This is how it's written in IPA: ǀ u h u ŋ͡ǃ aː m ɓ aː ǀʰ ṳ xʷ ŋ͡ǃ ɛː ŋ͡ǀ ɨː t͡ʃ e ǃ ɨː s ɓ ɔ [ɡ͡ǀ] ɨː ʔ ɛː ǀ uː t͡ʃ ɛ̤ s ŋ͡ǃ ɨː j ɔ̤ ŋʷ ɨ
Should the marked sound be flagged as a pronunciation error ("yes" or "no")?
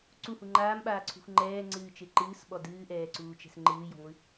yes